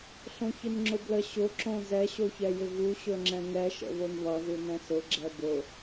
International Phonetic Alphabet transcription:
ɬõçɪnŋ͡ǁʊblə ɕʊ ǁõzɛ ɕoçɛjɪvu ɕɵŋ͡ǁɛ̃ŋɛ ʃə̰βonβʌ ðunɛ̃sʊ ɡ͡ǁɛbʊ

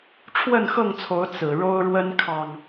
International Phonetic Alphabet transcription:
ʈ͡ʂʰwə˥˨nxɤ˥˨ŋt͡sʰo˨˦ʊ̯ t͡sɹ̩˨˩ɻo˦ʊ̯ɻwə˦nkʰɑ˨˩ŋ

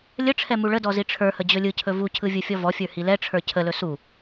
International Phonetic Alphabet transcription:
lʲəʈ͡ʂʰɛ muɭədɔ ziʈ͡ʂʰə˞hə d͡ʑɵlʲɯcʰɵ vucʰɯ vʲɯfʲɔvɔfʲə˞ hilɛʈ͡ʂʰə˞ cʰəlɵ su

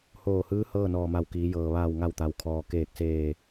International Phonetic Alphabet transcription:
hoː˧˩hɯː˧˥ hɤː˥˨nɔː˧˩ma˧˩w kiː˩˧jɤː˩ ʋaː˧˩wŋa˧˩wt̪a˩wkʰɔː˩ keː˧˩k̚seː˧˩

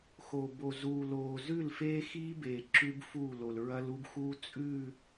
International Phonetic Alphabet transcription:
xo˨bo˨ zuː˨loː˨zʉ˦˨l feː˦xiː˦beː˨ ǁʉ˦bfu˦˨lo˨lɹɐ˦l u˦bxu˦t͡sʼʉ˦˨

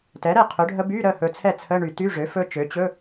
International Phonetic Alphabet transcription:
tɛ˩˥ɾɛ˥˩ qʰɵ˩˥ɖʱə˦˥ by˧˥˧ɾə˥˩hɵ˨ t͡sʰɛ˥˩t͡sʰə˧˥˧ ɳy˨˩˦ty˧˥˧ʐø˩˥ fɵ˦˥t͡ʃø˩˥ t͡ɕɵ˧˥˧

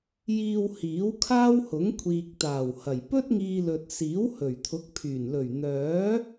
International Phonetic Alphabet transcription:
jiː˨w hiː˨˥wkʰaː˥whʊ˨˥ŋ kʷʰiː˨k̚t̪aː˨˩whɐ˨˩j pɵ˥t̚ŋiː˧lɵ˨t̚ siː˨˥whɵ˨˩ɥt̪ʰʊ˨˥k̚pʰyː˨˩n lɵ˨˩ɥn̪œː˨˥

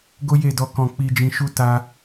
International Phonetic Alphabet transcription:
ɡo˦je˦˨dɔ˧ kɔ̃˧ k͡pi˧d͡ʒĩ˧ʃu˦ ta˦

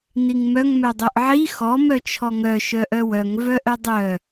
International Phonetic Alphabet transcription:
niŋmœŋ mœdˤœʔʕi xɔ mœt͡ʃʰɔŋœ ʃœʔœwœŋ vœʔœdˤœ

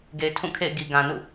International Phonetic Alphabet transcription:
ɡe˨ɪ̯tʰũ˦˨kʰḛ˦˨ɪ̯ ɡi˨ɡã˨nṵ˦˨

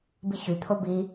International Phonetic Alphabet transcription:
biçyt̪ʰo bi

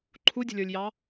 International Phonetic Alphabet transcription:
ǃʰudʲə̤lʲə˞lʲjɑ

